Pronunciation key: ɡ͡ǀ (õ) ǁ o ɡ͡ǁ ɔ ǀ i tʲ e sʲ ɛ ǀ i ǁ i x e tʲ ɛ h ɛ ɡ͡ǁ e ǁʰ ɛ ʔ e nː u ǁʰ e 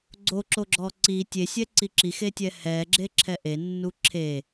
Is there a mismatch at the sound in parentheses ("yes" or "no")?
yes